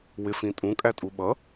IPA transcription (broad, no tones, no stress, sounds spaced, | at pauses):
w ɪ f ĩ tʼ ũ kʼ æ tʼ u ɓ ʌ